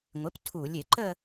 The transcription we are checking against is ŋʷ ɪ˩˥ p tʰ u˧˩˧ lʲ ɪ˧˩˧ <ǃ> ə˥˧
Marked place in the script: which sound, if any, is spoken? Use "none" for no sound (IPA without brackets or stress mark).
ǃ